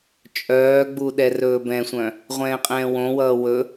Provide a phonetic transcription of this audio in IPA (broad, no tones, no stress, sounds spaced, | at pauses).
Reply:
t͡ʃʼ œː ɡ͡b u ɗ ɛ r ɵː b ɛ̃ sʷ œ̃ | ʁʷ ɛ̃ː qʼ ɛ̃ː w õ w ʌː w ɵ